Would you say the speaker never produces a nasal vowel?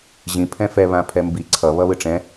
no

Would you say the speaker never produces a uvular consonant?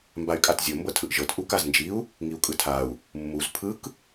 yes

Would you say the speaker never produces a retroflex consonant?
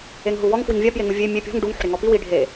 no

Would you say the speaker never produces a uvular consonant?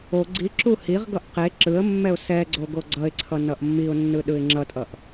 no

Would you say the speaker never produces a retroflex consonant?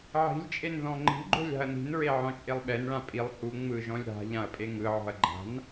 no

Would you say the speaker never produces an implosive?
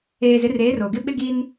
no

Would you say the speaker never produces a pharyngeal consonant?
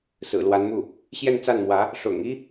yes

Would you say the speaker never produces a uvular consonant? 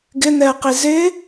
no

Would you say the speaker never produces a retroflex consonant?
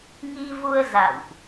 yes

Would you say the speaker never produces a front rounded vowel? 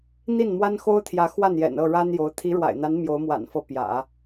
yes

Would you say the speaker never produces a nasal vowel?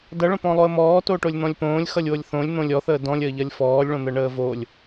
no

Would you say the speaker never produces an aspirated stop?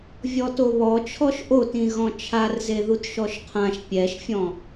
no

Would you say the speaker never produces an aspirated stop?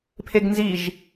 no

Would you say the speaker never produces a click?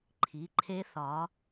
no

